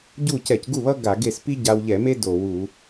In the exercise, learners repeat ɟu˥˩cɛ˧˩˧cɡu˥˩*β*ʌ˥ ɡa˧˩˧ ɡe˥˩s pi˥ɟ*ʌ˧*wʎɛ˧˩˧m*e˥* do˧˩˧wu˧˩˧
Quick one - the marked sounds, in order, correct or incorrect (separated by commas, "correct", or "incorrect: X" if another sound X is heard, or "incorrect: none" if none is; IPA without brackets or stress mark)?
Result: correct, incorrect: a˧, correct